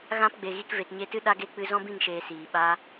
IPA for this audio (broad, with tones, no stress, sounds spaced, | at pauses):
ɣ ã˦ p ɡ͡b e˨ ɣ i˧ k v e˨ t ɲ e˧ t ɨ˦ ɗ a˦ ɡ e˦ k͡p ɨ˧ z ɔ̃˦ b ĩ˦˨ ŋ ʃ eː˨ s iː˨ ɓ a˦